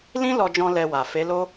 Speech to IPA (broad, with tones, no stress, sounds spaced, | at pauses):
l ĩ˦ l ɔ˧ d͡ʒ ɔ̃˧ l ɛ˧ w a˨ f e˨˦ l o˦